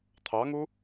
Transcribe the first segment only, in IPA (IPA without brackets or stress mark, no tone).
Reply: t̪ʰ